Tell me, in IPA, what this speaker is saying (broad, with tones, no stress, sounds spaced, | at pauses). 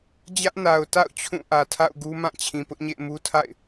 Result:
d͡ʑ ä˦ ʔ n a˨ ʊ̯ t a̰˦˨ ʊ̯ t͡ɕʰ ũ˦˨ ʔ ä˨ tʰ a̰˦˨ ʊ̯ ɡ u˦ m ã˦˨ t͡ɕʰ ĩ˨ p ʊ˦ ʔ ɲ ḛ˦˨ ɪ̯ m u˦ tʰ a̰˦˨ ɪ̯